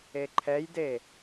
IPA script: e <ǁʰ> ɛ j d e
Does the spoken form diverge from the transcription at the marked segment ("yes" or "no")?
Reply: yes